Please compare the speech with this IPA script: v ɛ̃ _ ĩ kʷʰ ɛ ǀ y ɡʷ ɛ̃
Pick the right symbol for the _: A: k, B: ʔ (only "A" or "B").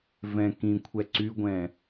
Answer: A